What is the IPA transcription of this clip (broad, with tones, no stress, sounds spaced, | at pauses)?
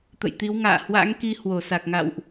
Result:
t̪ ə̰˧˨ j t̪ i˨˦ w ŋ a̰ː˧˨ h w a̰˧˥ ŋ k i˧ h w o˧˩ s a˨˩ k̚ ŋ a̰˧˨ w ʔ